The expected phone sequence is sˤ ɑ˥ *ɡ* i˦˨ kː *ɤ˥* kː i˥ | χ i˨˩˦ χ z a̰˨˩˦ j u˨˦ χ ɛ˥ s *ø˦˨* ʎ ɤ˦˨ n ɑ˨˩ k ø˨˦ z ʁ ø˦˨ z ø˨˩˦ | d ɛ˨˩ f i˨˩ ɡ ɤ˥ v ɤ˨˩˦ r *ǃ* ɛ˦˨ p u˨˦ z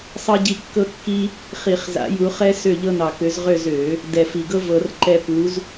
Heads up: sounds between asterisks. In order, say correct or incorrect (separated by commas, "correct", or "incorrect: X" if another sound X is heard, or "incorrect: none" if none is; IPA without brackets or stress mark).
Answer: incorrect: ɟ, correct, correct, correct